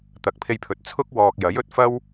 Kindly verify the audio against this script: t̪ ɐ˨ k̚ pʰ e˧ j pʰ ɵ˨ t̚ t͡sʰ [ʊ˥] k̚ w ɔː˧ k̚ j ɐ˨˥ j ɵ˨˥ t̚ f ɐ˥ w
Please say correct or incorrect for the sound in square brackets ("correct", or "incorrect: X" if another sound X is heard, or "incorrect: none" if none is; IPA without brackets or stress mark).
correct